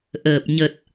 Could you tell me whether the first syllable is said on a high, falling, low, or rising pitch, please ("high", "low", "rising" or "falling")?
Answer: low